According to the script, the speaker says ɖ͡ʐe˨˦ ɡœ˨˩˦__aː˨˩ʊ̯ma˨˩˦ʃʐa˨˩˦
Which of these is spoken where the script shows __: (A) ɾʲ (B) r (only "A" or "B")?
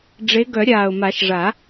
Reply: A